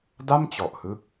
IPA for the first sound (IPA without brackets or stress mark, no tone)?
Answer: d